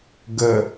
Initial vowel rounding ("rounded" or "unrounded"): unrounded